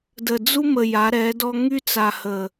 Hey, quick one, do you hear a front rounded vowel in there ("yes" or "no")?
yes